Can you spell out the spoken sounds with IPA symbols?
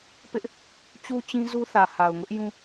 pɪ˦ʔ | t͡ɕu˦t͡ɕĩ˦zu˦θä˨ ha˨ʊ̯ŋʊ˦ʔ jũ˦

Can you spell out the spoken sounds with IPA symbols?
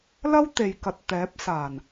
lɐ˥wt̪e˨jkɐ˨t̚ t̪ɛː˨˥p̚saː˨˩n

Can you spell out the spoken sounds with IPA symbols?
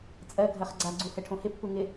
t͡sʼɜɡʱɜχ ɡ͡ǀaɡ͡ǀuhɛʈʰõ hɪpːu ŋɪ

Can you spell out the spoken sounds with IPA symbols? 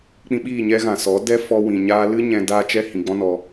k͡pĩ˧ɓiː˦˨ɲɛ˦ ɣã˨sɔ˨˦ dɛ˦ fɔ˧wĩ˨ ɲaː˧lɨ˦ ɲɛ̃˧ daː˦t͡ʃɛ˦ hĩ˨ ɡ͡bɔ̃˦nɔ˧

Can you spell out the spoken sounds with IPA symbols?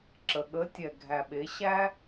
ǁə˨ ɠə˨˦tʲɛ˨ ɡʱæ˨ɓe˨˦ ɕæ˦

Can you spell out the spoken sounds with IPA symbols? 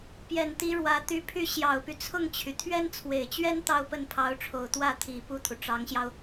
pjɛ˨˩nt̪i˧˥ ɻwä˧˥ t̪y˧˥pʰy˥˩ ɕjɑ˨˩ʊ̯py˦t͡sʰʊ˥˩ŋt͡ɕʰy˩ t̪ʰɥɛ˥nt͡sʰwe˨˩ɪ̯t͡ɕɥɛ˥n t̪ɑ˥˧ʊ̯pə˥˩npʰɑ˧˥ʊ̯ʈ͡ʂʰo˨˩ʊ̯ t̪wä˥˩t̪ʰi˨˩ pu˥˩t̪ʰu˩ʈ͡ʂɑ˧˥ŋɕjɑ˧ʊ̯

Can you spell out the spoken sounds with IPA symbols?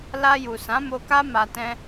la˧ju˨ sã˨˦mo˧ka˦ ma˧tɛ̃˦

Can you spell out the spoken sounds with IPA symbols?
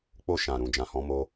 k͡po˧ʃã˨ ɾũ˨d͡ʒã˨hɔ̃˨˦ mo˧

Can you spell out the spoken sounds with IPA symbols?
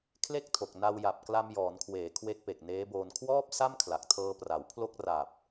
kʰle˥˩k̚tʰo˨˩k̚ na˧w ja˨˩p̚kla˧mjɔː˩˦nkʰweː˩˦ kʰwe˦˥k̚pe˨˩k̚neː˦˥boː˧n kʰwɔː˥˩p̚sa˥˩mkʰla˨˩k̚ tʰɤː˧pra˩˦wpʰlo˥˩k̚ ra˨˩p̚

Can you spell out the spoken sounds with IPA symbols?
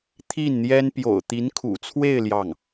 t̪ʰi˥˩nn̪jɛ˥n pjo̰˨˩ʊ̯t̪i˧˥nkʰṵ˨˩t͡sʰwe˥˧ɪ̯ ljɑ˥˩ŋ

